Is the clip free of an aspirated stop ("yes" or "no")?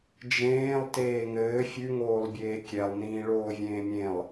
yes